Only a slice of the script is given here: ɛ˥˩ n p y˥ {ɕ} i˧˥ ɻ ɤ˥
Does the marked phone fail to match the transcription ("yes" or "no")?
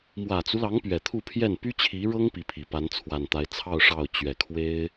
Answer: yes